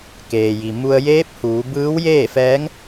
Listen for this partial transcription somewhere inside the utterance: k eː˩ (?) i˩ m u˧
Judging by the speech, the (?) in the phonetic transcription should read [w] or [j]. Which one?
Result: j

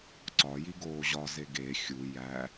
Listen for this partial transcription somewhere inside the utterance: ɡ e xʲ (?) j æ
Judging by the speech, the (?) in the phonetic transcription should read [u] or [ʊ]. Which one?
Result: u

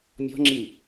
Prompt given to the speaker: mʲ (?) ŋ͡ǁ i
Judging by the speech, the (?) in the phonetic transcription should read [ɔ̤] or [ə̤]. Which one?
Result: ɔ̤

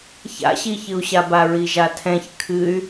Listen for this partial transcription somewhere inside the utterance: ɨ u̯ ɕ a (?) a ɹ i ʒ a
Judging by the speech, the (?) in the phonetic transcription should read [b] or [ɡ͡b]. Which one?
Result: b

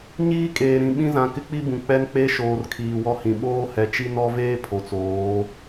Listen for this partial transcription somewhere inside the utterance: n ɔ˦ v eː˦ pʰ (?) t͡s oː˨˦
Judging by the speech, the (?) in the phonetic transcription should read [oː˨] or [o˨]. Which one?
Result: o˨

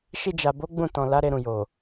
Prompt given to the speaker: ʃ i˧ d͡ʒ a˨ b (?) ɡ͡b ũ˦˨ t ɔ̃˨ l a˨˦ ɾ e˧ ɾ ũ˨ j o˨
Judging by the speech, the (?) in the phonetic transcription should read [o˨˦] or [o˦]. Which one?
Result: o˨˦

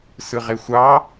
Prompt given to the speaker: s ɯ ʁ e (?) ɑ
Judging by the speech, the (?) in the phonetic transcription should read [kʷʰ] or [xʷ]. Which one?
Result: xʷ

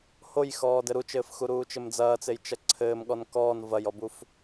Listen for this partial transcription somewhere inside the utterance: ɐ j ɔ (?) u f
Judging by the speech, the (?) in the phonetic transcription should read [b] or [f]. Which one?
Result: b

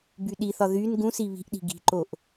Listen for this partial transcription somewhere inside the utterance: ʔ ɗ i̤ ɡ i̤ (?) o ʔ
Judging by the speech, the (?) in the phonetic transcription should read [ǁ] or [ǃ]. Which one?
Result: ǃ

